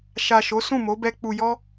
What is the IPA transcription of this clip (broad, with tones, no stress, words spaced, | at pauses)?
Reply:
ʃa˨ ʃo˨˦sũ˦˨mo˨˦bɛ˧ k͡pu˨jɔ˧